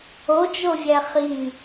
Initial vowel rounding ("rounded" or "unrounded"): rounded